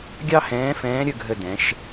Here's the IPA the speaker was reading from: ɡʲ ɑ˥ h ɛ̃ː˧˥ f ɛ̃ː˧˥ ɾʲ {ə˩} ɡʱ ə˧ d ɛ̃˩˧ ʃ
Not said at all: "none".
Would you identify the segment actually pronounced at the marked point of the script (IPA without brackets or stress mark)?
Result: ə˧